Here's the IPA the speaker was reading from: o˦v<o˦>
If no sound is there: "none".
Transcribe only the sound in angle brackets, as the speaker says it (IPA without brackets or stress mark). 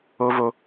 o˦